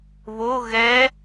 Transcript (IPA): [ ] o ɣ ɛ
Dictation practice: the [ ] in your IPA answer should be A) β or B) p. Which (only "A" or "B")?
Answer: A